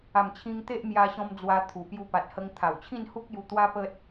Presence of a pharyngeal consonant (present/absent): absent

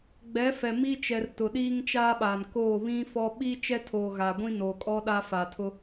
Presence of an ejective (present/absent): present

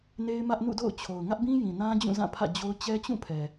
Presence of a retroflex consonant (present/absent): absent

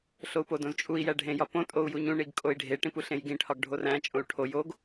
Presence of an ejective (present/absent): present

